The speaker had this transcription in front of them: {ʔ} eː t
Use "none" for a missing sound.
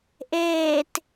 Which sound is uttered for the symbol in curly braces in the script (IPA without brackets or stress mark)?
ʔ